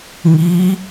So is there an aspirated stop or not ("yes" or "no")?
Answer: no